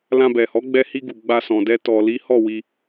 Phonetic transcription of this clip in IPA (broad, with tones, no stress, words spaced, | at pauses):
lã˧bɛ˨hɔ˨˦ ɡ͡bɛ˧hi˧ ɡu˨ ɡ͡ba˧sɔ̃˨dɛ˧ tɔ˨ li˨˦hɔ˦˨wi˧